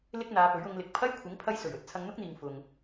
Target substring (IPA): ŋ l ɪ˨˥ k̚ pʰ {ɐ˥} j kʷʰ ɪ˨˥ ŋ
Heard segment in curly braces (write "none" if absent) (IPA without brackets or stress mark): ɐ˥